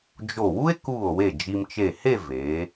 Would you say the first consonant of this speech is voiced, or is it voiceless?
voiced